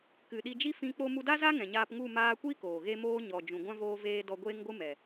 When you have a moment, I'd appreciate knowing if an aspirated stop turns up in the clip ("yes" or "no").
no